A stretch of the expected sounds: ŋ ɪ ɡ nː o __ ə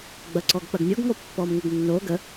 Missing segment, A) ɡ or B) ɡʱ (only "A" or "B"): A